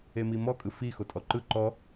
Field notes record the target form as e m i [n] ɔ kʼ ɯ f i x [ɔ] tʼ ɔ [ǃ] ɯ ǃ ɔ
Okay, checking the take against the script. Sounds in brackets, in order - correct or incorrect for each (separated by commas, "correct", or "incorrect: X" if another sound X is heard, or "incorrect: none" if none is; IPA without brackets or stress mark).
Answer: incorrect: m, incorrect: o, correct